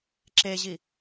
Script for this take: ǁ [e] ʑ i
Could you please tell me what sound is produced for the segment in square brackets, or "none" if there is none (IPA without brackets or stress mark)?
e